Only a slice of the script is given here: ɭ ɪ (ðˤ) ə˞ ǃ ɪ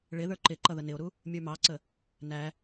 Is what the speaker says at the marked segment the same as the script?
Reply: no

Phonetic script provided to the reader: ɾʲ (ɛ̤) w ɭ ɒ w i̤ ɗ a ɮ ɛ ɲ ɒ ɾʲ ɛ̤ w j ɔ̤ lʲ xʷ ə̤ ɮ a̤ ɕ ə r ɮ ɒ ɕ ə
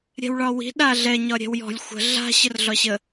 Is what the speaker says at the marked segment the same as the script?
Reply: yes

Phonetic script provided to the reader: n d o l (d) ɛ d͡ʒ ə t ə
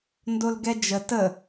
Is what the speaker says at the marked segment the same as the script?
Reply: no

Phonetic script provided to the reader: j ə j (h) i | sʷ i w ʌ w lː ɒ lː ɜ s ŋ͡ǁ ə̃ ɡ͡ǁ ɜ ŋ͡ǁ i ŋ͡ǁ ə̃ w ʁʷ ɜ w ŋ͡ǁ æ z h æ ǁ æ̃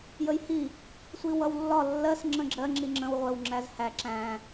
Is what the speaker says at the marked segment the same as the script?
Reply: yes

